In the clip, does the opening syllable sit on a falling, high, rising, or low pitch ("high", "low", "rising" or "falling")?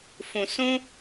low